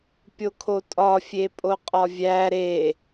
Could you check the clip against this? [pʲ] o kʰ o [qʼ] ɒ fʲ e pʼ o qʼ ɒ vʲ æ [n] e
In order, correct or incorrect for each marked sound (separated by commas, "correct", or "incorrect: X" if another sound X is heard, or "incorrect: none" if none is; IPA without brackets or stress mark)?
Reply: correct, incorrect: tʼ, incorrect: ɾ